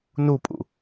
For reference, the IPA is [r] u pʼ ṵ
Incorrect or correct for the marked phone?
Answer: incorrect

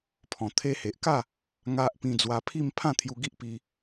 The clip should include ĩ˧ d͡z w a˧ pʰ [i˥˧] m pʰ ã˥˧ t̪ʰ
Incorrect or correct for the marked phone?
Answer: correct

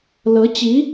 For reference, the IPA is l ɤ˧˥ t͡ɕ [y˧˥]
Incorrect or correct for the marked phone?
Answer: incorrect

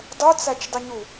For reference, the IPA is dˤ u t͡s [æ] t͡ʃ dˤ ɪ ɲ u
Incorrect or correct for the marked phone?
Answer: correct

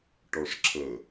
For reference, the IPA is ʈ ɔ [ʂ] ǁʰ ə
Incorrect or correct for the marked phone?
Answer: correct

